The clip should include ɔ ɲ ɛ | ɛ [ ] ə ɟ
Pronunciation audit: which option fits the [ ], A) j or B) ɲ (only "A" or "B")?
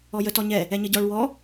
B